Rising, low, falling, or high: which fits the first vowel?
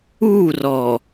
falling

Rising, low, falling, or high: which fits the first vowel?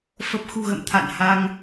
low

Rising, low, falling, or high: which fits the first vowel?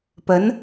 rising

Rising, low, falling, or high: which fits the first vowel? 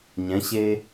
rising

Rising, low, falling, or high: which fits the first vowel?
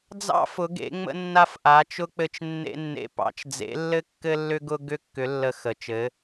high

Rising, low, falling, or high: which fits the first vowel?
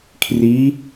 rising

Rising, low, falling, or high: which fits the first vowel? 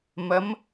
rising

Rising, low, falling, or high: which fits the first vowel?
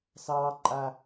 high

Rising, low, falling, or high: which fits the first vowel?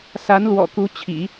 rising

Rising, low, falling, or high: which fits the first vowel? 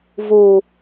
low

